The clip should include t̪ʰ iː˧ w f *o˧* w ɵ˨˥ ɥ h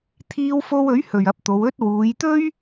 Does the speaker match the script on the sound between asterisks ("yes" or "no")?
yes